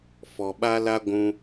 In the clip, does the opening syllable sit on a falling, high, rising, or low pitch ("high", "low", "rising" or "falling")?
low